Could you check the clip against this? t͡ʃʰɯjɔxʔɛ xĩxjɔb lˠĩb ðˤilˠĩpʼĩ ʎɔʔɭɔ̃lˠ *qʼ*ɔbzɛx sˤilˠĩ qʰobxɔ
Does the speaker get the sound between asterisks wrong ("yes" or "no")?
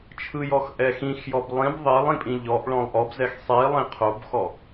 yes